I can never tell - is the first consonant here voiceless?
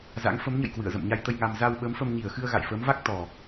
no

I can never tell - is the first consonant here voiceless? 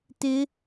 yes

